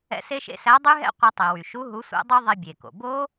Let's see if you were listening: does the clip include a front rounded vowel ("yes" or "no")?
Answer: yes